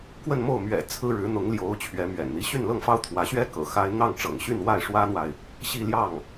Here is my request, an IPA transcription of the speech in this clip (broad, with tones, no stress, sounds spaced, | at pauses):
k w ə˥˧ n m o˥˩ ʊ̯ m ɥ ɛ̰˨˩ t͡sʰ ɹ̩˥ ɻ ɻ̩˧˥ n̪ ʊ˧˥ ŋ l j o˧˥ ʊ̯ t͡ɕʰ ɥ ɛ˧˥ m ɥ ɛ̰˨˩ n n̪ i˧˥ ɕ y˥˧ n l ɤ˥˩ ŋ f ɑ˥ ʊ̯ t̪ʰ w ä˧˥ ɕ ɥ ɛ˥ k ɤ̰˨˩ x a˥ ɪ̯ n̪ ɑ˥˩ ŋ ʈ͡ʂ ɤ̰˨˩ ŋ ɕ y˥˧ n w a˥˩ ɪ̯ ʂ w ä˥ n̪ w a˨ ɪ̯ | ɕ i˥˧ l j ɑ˥˩ ŋ